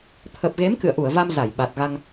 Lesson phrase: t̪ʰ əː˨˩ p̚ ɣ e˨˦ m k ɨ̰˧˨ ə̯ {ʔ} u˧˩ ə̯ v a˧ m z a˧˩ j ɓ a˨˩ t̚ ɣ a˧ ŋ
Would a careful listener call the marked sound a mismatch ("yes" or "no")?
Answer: no